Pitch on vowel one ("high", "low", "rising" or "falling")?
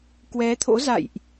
rising